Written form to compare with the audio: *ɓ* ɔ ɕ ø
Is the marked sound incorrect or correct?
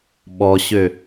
correct